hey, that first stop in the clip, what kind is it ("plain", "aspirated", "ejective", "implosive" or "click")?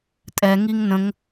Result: ejective